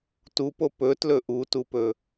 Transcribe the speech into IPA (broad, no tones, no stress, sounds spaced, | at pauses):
t u p o p ɵ t l ɵ ʔ u t u p ɵ